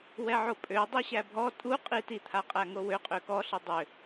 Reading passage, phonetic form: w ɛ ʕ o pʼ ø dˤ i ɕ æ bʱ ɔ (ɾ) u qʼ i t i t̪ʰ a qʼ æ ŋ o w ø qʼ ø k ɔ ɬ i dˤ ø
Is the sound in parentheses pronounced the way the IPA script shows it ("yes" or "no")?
no